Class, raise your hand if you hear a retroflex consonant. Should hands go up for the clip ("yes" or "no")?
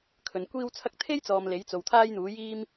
no